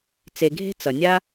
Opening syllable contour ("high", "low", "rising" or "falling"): low